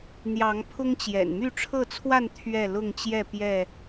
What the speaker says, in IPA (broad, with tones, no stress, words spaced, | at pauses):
n̪jɑ˨˦ŋpʰʊ˦ŋ t͡ɕjɛ̰˨˩n my˥˨ʈ͡ʂʰɤ˥˨t͡sʰwa˥˨n t̪ʰɥɛ˥˨lʊ˥˨ŋt͡ɕjɛ˥˨ pjɛ˥˨